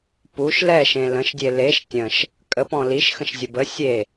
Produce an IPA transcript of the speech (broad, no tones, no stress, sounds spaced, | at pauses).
p u ʃ l ɛ ʃ ẽ l ə̃ ʃ dʲ e l e ʃ tʲ ə̃ ʃ | kʼ ə p ɔ̃ l i ʃ x ə̃ ʃ zʲ ə b ə sʲ e